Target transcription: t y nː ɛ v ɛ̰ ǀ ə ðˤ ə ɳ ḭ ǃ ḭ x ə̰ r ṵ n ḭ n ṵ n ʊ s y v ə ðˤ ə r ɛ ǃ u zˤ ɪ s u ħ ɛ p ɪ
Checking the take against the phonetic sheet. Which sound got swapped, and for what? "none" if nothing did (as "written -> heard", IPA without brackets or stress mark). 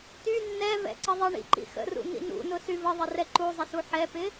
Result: none